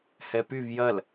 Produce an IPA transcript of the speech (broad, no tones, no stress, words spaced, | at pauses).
hɛpyv jɐl